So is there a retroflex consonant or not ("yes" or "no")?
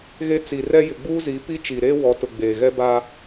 no